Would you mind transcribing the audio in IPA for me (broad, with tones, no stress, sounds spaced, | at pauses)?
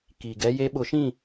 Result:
k i˨ ɡ ɛ˦ j e˦ ɓ ʊ˨˦ ʃ ĩ˦˨